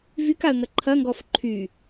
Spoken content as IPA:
v y k a ə̯ ŋ ɐ ǃʰ ɐ ŋ ɡ ɔ f ǃʰ y

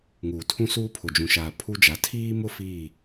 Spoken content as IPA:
ŋ uː˨ tʰ ũ˦ s uː˦ pʰ ʊ˨ d͡ʒ ũ˨ ʃ aː˨ pʰ u˦ d͡ʒ a˨˦ tʰ iː˦ m ʊ˦ f iː˦˨

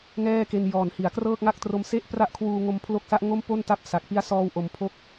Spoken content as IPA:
ŋ ɛː˥˩ k e˧ n j ɔː˨˩ n h i˩˦ a̯ k r ɤː˥˩ k̚ ŋ a˥˩ k̚ t r o˧ m s e˥˩ ʔ p r a˥˩ ʔ kʰ w uː˧ ŋ o˧ m pʰ l o˦˥ k̚ s a˦˥ ʔ ŋ o˥˩ m p o˥˩ n t a˥˩ p̚ s a˨˩ k̚ p i˦˥ a̯ s ɔː˧ w ʔ o˨˩ m pʰ o˦˥ k̚

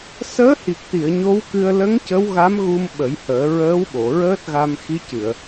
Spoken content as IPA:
s əː˧˥ h i˨˩ k̚ t̪ i˨˩˨ ə̯ ɲ o˧˥ w k ɨ˧ ə̯ l ə˧˥ ŋ c ə˧˥ w ɣ a˧˥ m ɣ u˧ m ɓ ə˨˩˦ j h əː˨˩˦ ɹ əː˧˥ w ɓ o˨˩˨ ɹ əː˦˥ t̚ ɣ a˧ m x i˧˥ c ɨ˨˩˨ ə̯

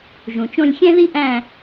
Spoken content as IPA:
ʒ ũ˩ t͡ʃ õ˦˨ lʲ xʲ æ̃˥ ð i˥ ʔ æ̃˦˨

